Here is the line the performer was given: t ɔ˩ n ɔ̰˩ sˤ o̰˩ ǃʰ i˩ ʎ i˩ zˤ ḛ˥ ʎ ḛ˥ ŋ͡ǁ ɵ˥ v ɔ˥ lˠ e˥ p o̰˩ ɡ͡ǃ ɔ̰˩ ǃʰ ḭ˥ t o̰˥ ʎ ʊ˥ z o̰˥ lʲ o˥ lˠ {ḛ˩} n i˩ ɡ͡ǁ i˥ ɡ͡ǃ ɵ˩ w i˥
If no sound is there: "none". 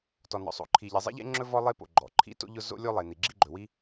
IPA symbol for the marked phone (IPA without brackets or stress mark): e˩